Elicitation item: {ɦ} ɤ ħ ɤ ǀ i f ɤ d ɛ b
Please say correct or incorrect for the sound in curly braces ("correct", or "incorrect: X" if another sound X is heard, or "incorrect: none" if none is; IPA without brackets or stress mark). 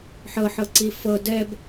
incorrect: ħ